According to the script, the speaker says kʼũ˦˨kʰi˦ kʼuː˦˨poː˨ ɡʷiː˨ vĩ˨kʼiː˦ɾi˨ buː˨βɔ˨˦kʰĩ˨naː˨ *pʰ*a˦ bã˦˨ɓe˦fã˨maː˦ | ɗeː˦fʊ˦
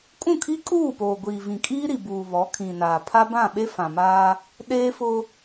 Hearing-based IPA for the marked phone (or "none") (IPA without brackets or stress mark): pʰ